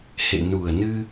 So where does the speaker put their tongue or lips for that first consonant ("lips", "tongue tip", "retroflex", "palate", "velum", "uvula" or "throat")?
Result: throat